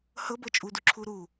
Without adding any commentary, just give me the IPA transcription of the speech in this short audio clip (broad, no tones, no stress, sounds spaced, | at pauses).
h ɤ b ɤ t͡ʃʼ u d u ǁʰ u ɾ u